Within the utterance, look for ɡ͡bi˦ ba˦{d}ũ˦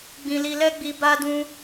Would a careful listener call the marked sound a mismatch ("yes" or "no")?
no